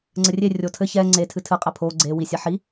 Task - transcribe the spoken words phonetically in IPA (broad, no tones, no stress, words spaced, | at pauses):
ŋ͡ǀɘrʲe rʲotʰɘ çɛ ŋ͡ǀetʰɨ tʰɨqʼɛ pʰo ɡ͡ǀe wisʲaħi